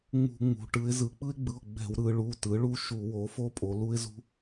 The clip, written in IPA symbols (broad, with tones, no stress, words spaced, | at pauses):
ŋ͡mṳ˧˩˧ŋ͡mṳ˩˧ ʈɯ˩˧ɪ̯zɯ˩˧k͡pɯ˦ɪ̯ɡ͡bɯ˩˧˩ʊ̯ ɡ͡bɛ̤˧˩˧wɾɯ˩˧ɭu˩˧˩ tɯ˩˥ɭu˦ ʃu˧˩˧wo˩˥ fo˦pʼo˩˧lu˦ɪ̯zṳ˦